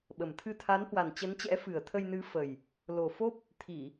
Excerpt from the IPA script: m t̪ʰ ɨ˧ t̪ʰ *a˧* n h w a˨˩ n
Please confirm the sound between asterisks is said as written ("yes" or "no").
no